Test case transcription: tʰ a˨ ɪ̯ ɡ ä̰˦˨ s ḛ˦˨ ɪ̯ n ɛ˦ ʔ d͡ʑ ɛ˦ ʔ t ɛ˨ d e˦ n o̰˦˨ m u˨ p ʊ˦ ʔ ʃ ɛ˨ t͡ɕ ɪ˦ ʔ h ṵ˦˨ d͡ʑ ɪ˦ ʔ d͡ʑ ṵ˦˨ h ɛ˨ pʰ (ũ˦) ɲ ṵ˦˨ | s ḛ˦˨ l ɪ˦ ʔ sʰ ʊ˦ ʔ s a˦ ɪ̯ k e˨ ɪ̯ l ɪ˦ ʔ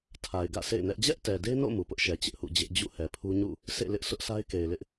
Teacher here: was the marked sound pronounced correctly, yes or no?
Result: no